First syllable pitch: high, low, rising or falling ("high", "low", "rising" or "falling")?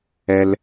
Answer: high